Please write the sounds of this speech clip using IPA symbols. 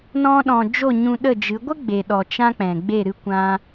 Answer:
nɔ̃˧ɗɔ̃˨ d͡ʒo˦˨ɲũ˧ɗə˦˨d͡ʒɨ˨˦ ɡʷə˦ ɡ͡be˨ɗɔ˨ t͡ʃã˧ k͡pɛ̃˨ɡ͡be˦˨ɾɨ˦ kʷã˧

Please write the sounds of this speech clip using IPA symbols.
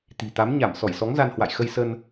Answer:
t̪i̤˨˩t̪a˨˦m ɲa˧˩m sɔ˧˩jsɔ˨˦ŋza˧n hwa̰˧˨j xə˧j sə˧n

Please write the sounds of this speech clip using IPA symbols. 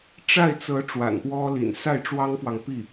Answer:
ʈ͡ʂa˥˩ɪ̯t͡sɤ˧˥ ʈ͡ʂwa̰˨˩npwɔ˥lḭ˨˩n sa˥˩ɪ̯ʈ͡ʂwɑ˥ŋfwɑ˨ŋpi˥˩

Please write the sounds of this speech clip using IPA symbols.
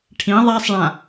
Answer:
ʈʰĩ ðˤasˤɭã

